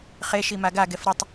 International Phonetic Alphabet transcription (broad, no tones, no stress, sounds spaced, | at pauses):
χ e ʃ i m a ɡ a ɡ ɛ f ɾ ɨ tˤ